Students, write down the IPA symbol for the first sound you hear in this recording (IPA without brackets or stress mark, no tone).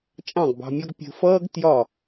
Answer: t͡ʃʼ